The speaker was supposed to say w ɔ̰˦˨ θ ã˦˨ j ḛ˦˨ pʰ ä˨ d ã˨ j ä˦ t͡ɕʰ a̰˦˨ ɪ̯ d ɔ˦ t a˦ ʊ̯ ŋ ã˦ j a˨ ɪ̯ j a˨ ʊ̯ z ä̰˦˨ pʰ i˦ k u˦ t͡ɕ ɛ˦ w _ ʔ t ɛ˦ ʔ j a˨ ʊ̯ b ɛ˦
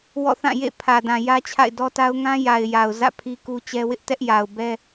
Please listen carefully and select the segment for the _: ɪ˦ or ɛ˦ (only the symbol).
ɪ˦